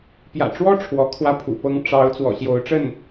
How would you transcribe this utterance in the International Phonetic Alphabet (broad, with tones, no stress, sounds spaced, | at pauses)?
p j ä̰˨˩ ʈ͡ʂ w ɔ˥ ʈ͡ʂʰ w ɔ˧˥ kʰ w ä˥˩ pʰ ṵ˨˩ p ɤ˥ ŋ ʈ͡ʂ ɑ˧˥ ʊ̯ t͡s w ɔ̰˨˩ ɕ j o˧˥ ʊ̯ ʈ͡ʂ ə˥˩ n